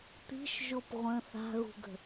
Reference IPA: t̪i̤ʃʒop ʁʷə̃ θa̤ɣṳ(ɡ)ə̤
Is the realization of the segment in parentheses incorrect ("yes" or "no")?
no